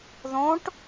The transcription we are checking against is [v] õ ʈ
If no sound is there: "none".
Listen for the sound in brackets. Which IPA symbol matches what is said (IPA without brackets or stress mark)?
ð